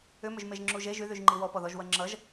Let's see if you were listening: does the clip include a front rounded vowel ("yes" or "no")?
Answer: yes